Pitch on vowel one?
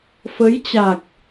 rising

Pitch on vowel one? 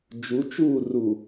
rising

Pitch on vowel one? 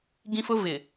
high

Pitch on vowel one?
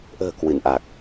low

